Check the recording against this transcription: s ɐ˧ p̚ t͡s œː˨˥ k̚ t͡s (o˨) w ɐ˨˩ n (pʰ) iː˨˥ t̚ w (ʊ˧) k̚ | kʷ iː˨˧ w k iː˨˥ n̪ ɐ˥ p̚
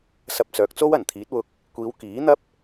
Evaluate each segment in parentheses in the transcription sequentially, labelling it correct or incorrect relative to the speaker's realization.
incorrect: o˥, incorrect: t̪ʰ, correct

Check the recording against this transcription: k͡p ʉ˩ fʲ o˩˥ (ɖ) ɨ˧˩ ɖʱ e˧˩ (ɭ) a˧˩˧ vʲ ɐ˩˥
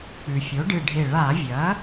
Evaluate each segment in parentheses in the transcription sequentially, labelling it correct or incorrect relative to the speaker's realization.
correct, correct

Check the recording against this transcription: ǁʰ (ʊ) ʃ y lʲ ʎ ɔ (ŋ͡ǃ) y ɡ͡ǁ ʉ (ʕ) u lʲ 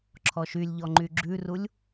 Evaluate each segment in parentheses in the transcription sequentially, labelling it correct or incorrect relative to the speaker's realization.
incorrect: ɔ, correct, incorrect: r

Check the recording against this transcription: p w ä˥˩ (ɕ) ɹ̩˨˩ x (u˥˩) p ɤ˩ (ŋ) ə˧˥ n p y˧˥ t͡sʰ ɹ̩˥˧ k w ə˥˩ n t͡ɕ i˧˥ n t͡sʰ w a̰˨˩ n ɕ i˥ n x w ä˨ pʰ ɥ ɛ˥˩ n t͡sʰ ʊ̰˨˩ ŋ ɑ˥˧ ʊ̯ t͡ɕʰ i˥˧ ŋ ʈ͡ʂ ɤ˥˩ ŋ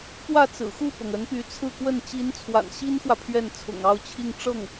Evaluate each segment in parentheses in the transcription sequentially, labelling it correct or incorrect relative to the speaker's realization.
incorrect: t͡s, correct, correct

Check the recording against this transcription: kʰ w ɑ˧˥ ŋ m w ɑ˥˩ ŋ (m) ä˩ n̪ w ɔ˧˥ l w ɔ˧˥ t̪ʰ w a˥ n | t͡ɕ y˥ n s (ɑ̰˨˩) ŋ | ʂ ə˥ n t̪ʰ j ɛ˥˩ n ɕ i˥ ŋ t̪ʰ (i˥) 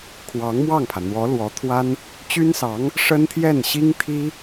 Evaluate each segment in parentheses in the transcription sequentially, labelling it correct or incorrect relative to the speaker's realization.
incorrect: pʰ, incorrect: ɑ˧˥, correct

